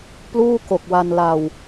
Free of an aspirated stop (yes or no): yes